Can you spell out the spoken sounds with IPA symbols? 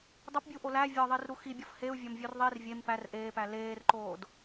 dˤ o p bʲ u ʔ o l æ vʲ ɒ ðˤ i r ɾ u x i bʲ ɒ f h e u̯ vʲ ɒ m vʲ o r ðˤ i r vʲ e m p æ r ʔ eː p æ l eː r ǃ oː d

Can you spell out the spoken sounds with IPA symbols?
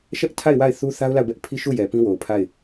ʃ ɛ˦ ʔ tʰ a˦˨ ɪ̯ w a˦˨ ɪ̯ θ u˦ θ a˦ ʊ̯ l a˦˨ ʊ̯ b ɛ˦ ʔ pʰ i˦ ʃ u˦˨ j ɛ˨ p ĩ˦ w o˨ ʊ̯ pʰ a˦˨ ɪ̯

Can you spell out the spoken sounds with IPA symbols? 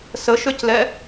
s ə ʃ ø c l ɛ

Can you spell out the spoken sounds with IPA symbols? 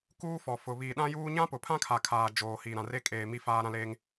k uː˦ f ɔ˨ f ʊ˨ β iː˨ ɗ ã˦ j uː˦ ɲ ã˦ p ʊ˨ pʰ ã˦ kʰ a˨ kʰ aː˨ d͡ʒ oː˨ h i˨ ɾ ã˨ r e˦ kʼ eː˨ m i˦ f aː˦ ɾ ã˦ l eː˦ ŋ

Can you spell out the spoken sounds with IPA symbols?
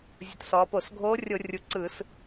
zʲ u˩˧ t s ɔː˩˧ p o˧˩˧ s ɡʱ oː˧˥ rʲ o˧˩˧ rʲ u˩˧ ǀ ɯ˧˩˧ s

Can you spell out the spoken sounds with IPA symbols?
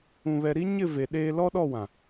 ũ˦ β ɛ˦ ɾ i˦ ɲ ɪ˦˨ v e˨ ɗ eː˦ l ɔ˦ ɗ ɔ˦˨ w ã˨

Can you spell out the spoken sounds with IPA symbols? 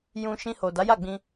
j ũ˧ ʃ ĩ˧ h o˨ d a˨˦ j a˦˨ ɡ͡b ĩ˧

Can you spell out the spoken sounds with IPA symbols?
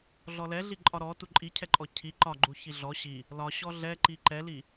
ɮ ɔ l ɛ ɮ i ǃʼ ɒ ɾ ɔ t u ǃʼ i cʰ ɛ ǃʼ ɔ cʰ i ǃ ɒ ɡ͡ǃ u ç i ɮ ɔ ɕ i | l ɒ ɕ ɔ ɮ ɛ ǃ i ǃ ɛ l i

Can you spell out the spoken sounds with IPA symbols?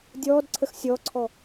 dʲ ɔː d ǀʰ ə x sʲ ɔ ǀʰ ɔ

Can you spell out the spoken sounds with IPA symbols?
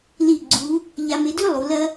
l i˧˩ ɡ͡ǀ u˩˧ | ʎ a˧ m e˧ d ʉ˥ lˠ u˩˧ l ɐ˥

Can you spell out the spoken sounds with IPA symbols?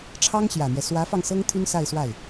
ʈ͡ʂʰ ɑ˥ ŋ ɕ j ä˨˩ n̪ j ɛ˦ s w ä˧˥ f ɑ˧ ŋ s ɤ˥ ŋ t̪ʰ y˥ n s a˥˧ ɪ̯ s w a˥˩ ɪ̯

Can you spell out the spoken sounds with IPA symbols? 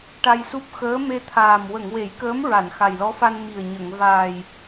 ʈ a˧ j s u˦˥ p̚ x əː˧˥ m e˧ t̪ʰ aː˨˩ m w ə˨˩˨ ŋ w e˨˩˦ j k əː˧˥ m ɹ a˨˩˨ n x a˨˩ j l ɔ˧˥ f a˧ n m i˨˩ ə̯ ɲ ə˨˩˨ ŋ v aː˨˩ j

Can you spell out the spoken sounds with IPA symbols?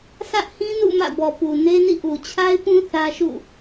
s ä˦ ʔ h ĩ˦ n ṵ˦˨ m ä̰˦˨ b ɔ˨ p u˨ n e˦ n ḭ˦˨ ʔ u˨ t͡ɕʰ a˦ ɪ̯ p ũ˦ θ ä˦ ʃ ṵ˦˨

